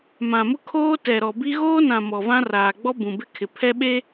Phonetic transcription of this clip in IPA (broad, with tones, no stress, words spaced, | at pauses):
mã˨mʊ˦ kʰoː˦tɛ˨ɾɔ˨bi˦ ɣoː˦nã˨ mɔ˨vã˦raː˨ ɡ͡bɔ˦ bũ˨bɪ˦kʰɪ˨ pʰɛ˦ɓe˦